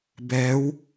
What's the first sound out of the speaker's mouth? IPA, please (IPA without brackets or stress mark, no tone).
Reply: b